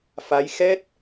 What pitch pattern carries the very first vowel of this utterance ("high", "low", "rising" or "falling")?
rising